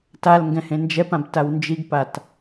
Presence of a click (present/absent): absent